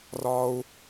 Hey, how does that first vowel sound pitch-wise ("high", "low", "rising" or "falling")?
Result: high